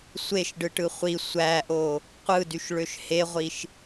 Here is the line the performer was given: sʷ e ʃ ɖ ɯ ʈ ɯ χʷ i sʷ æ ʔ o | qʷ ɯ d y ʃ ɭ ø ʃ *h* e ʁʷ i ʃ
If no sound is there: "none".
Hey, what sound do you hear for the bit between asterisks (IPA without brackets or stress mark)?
h